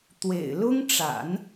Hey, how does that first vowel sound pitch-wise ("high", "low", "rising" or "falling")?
low